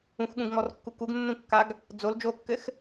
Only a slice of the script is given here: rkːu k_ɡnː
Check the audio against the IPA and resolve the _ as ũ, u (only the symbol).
u